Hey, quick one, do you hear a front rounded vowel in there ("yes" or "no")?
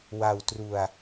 no